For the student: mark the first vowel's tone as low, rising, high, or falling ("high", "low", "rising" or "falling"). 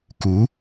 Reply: rising